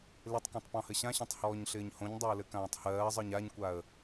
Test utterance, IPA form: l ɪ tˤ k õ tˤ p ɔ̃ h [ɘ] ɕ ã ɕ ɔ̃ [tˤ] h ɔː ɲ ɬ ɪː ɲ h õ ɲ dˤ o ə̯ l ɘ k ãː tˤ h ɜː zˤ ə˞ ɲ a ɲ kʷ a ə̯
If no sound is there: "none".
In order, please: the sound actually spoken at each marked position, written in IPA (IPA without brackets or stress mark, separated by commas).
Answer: ɘ, tˤ